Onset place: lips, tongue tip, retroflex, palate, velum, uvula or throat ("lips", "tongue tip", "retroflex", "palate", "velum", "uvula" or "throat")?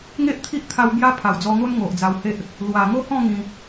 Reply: velum